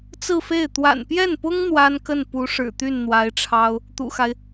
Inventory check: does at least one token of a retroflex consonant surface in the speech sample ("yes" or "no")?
yes